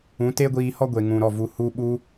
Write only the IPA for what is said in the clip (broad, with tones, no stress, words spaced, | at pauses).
ũ˨˦te˦ɡʷiː˧hɔ˦ ɡʷe˨ŋũ˨ ɾɔ˦˨vu˧ hu˧ɓu˧